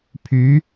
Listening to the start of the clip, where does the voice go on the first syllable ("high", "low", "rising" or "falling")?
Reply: rising